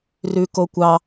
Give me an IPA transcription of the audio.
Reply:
r ʉ k o kʷ ɑ

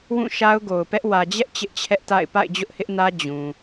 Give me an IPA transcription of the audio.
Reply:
w ũ˦˨ ʃ a˦ ʊ̯ ɡ o˨ ʊ̯ p ɛ˦ ʔ w ä˨ d͡ʑ ɛ˦ ʔ t͡ɕ ɪ˦ ʔ t͡ɕʰ ɛ˦ ʔ t a̰˦˨ ɪ̯ p a̰˦˨ ɪ̯ d͡ʑ ʊ˦ ʔ h ɪ˦ ʔ n ä˦ d͡ʑ ũ˨

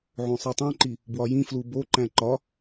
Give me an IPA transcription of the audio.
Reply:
ʕ õ sˤ i tˤ ĩ ǃ i | b w ɒ j ĩ f l u b o ǃ æ̃ ǃ ɒ

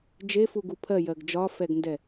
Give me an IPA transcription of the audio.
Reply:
d͡ʒ e f u ɡ u pʰ ɜ j ɜ ɡ d͡ʒ ɒ f ɛ ɡ n d ɛ

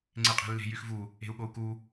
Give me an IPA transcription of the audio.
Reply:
ŋ͡ǀ e qʼ e̤ lː e̤ j y x v u | e̤ u̯ ɠ o u̯ k u

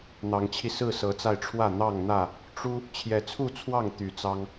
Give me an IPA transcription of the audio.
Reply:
n̪ ɑ˨˦ ŋ t͡ɕʰ i˧ s ɹ̩˥˨ s ɤ˨˦ t͡s a˧ ɪ̯ ʈ͡ʂʰ w ä˥˨ n̪ ɑ˥˨ ŋ n̪ ä˥˨ | ʈ͡ʂ u˦ | t͡ɕʰ j ɛ˨˦ t͡sʰ u˥˨ t͡sʰ w ɑ˥˨ ŋ t̪ y˨˦ t͡s ɑ˦ ŋ

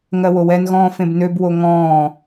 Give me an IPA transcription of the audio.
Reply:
ŋ ɜ w o w ɛ n ɣ ɔ̃ː f ẽ b n ø b w o ŋ ɔ̃ː

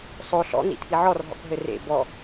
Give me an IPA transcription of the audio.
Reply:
sˤ o ɬ ɔ̰ n̪ ḭ t̪ʰ i ʕ ɔ r ɦ ɔ̰ k ɦ ɘ r ḛ b ɔ

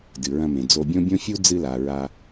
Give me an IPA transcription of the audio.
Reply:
d ɨ˩ ɹ ɐ̃˧ m ẽ˩ d͡z o˧ bʲ õ˥ bʲ õ˥ fʲ u˥ d͡z ɨ˧ l a˩ ɹ a˧

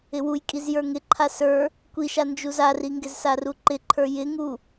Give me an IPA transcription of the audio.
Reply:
ɪ w u j kʼ i z j ə˞ ŋ ɪ ǃʰ a s ə˞ | kʷ i ʃ a n d͡ʒ u z a r i ŋ ɡ ɪ z s a r u ǃ ɪ ǃʰ ə˞ j ɪ ŋ u

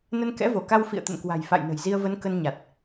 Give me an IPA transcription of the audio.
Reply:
n ə˧ n k ɛ̰˧˥ v o˧˩ k a˧ w f ḭ˧˨ ə̯ t̪ ə̰˧˨ n k w a̤˨˩ j f a̰˧˨ j n ə̤˨˩ j z i˧ ə̯ v ə˨˦ n k ə˧ n ɲ a˨˩ t̚

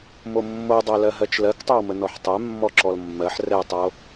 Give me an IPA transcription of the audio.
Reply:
m o mː o dˤ ɜ l ɜ ɦ ɜ t͡ʃ l ɜ k tˤ œ w m ə n ɔ ħ tˤ ɛ mː ɔ ǁ ɔ l mː ɜ ħ r ɛ tˤ o

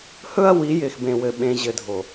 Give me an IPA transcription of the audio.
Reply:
h ɵ˦ ɐ̯ w i˨˦ j ɪː˨ x b ẽ˨ w ɘ˨ ɓ ẽ˨ ʑ ɘ˨ dʱ o˨

